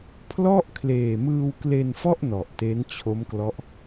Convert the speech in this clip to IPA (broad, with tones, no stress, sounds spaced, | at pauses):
pʰ l ɔ˥˩ ʔ kʰ l eː˨˩ m ɯː˧ w k l e˧ n f ɔ˥˩ ʔ n ɔ˨˩ ʔ t e˦˥ n t͡ɕʰ o˦˥ m k l ɔ˦˥ ʔ